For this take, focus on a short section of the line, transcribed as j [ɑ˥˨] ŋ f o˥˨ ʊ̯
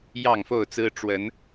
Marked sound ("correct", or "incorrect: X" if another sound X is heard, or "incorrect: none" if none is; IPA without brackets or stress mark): correct